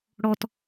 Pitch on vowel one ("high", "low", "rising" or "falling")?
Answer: low